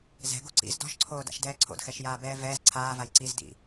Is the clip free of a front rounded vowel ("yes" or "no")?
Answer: yes